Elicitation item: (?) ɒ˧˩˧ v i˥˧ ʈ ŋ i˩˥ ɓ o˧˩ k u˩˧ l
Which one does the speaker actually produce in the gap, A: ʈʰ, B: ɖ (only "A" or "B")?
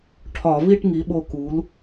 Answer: A